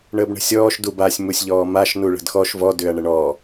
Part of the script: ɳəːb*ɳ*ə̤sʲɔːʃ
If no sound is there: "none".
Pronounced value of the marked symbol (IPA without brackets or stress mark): ɳ